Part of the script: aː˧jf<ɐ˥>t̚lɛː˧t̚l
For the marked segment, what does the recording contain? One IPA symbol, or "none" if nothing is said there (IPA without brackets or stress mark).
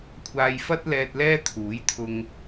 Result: ɐ˥